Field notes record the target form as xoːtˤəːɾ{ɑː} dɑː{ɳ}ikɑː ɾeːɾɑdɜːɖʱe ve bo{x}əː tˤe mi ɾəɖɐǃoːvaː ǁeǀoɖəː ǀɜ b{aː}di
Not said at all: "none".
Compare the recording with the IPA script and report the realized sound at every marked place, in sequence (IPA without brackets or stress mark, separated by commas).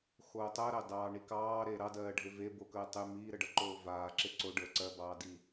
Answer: ɑ, ɳ, k, ɑː